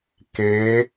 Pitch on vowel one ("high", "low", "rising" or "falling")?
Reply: rising